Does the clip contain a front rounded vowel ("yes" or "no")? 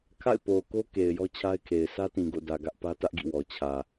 no